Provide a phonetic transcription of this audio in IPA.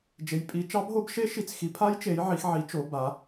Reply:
d͡ʒ e˨˦ j pʼ i˨˦ t͡ʃ ɑ˦˥ b ɦ o˦˥ b ʃ e˦˥ ʃ i˨˦ t͡s x i˨˦ pʰ a˦˥ j t͡ʃ e˨˦ j ʕ i˨˦ x ʕ i˨˦ t͡ʃ o˨˦ b a˨˦

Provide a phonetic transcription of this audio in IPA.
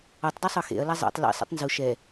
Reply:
ɔ tˤ d ɔ sˤ ɤ x ḛ ɐ̯ l a zˤ ḛ tˤ l ḭ sˤ ḭ tˤ n z u ʃ ɛ

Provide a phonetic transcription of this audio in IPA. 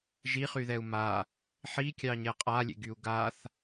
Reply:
ʒ i χ y ð ɛ u̯ m a | ħ i kʲ ɑ ɲ ɛ qʼ a lʲ ḛ ɡ y u̯ ɡ a θ

